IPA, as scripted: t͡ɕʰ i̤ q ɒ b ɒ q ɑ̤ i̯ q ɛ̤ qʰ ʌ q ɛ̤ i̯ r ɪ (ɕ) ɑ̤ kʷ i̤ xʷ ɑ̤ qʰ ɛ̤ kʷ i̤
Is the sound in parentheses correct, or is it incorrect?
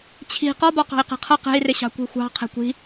correct